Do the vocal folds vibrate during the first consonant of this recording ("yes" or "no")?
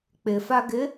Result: no